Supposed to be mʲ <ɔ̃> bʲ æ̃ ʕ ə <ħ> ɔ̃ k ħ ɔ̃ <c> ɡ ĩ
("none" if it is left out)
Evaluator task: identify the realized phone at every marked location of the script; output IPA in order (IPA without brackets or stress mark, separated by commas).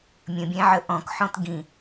ə̃, ʔ, t